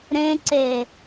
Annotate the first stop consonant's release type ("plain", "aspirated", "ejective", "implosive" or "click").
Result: click